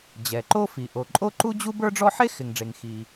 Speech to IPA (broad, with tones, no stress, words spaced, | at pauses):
d͡ʑɛ˩ǃo˥fi˩ ʔo˩ǃʼo˥ǃu˥d͡ʑu˥b ə˞˥ɖ͡ʐɔ˥ ħe˥xɪ˩ŋɖ͡ʐe˩ŋ xi˩